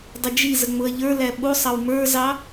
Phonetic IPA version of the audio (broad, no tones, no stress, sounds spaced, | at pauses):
dˤ ɪ d͡ʒ i z ə ŋ͡m ʊ ɐ̯ ʎ ə˞ l æ ɓ u sˤ ɑ w m ə˞ z ɑ